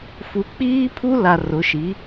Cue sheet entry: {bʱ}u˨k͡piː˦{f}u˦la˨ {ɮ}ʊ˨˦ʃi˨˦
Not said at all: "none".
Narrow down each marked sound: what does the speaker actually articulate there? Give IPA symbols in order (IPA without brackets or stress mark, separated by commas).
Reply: f, pʰ, r